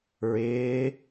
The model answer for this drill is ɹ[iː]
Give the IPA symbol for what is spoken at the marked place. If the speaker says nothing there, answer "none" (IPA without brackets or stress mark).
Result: ɪː